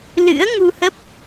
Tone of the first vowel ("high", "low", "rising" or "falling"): rising